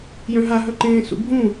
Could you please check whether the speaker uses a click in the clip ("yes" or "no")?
yes